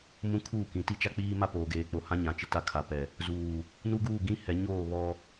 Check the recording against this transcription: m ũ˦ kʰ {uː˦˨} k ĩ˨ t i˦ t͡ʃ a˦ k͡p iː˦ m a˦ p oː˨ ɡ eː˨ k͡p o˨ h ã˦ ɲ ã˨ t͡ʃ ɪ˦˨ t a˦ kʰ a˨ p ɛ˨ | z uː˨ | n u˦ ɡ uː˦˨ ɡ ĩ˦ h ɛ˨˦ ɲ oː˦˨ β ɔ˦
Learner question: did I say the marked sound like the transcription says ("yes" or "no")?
yes